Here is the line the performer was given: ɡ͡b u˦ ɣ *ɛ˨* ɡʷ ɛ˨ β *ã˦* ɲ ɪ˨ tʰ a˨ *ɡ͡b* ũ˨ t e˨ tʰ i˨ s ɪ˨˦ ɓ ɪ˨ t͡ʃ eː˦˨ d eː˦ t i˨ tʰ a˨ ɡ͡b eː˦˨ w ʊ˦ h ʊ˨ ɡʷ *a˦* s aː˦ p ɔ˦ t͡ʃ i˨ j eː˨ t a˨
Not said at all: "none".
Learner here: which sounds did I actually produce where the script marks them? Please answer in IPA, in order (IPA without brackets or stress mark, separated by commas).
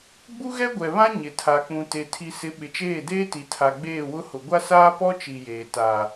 ɛ˦, ã˦, k͡p, a˦